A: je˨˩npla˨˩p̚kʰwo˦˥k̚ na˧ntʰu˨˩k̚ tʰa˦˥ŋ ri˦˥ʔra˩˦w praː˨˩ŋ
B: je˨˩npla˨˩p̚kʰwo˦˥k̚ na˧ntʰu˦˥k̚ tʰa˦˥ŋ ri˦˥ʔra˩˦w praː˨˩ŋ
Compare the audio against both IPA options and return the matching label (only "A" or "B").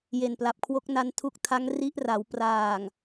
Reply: B